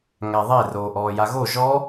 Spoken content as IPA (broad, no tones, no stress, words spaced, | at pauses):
ŋæðˤe roːʔɔːjaɣo ʒɔ